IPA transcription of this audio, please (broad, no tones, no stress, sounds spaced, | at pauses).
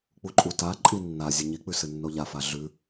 k͡p u ǃʼ u t a ǃʼ i nː a zʲ ɨ ɲ i k͡p ʉ s ɨ nː o ʎ a f a ɮ ʉ